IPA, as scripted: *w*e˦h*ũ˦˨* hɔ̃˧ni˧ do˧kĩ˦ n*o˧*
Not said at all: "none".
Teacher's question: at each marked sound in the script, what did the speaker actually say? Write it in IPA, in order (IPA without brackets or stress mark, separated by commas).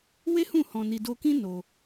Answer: w, ũ˦˨, o˧